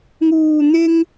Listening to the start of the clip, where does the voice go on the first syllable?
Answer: low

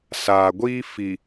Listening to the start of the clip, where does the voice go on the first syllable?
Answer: low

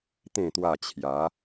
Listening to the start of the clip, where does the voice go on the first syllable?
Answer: low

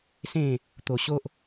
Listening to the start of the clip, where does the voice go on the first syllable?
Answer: falling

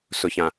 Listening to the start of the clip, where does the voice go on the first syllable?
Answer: low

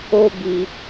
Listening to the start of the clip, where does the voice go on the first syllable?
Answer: high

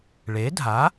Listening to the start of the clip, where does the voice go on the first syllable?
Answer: rising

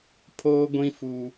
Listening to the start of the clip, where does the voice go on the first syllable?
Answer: high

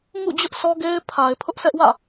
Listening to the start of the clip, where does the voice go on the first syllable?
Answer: falling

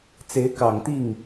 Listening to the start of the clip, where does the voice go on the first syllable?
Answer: rising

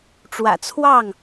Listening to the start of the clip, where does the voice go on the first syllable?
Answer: low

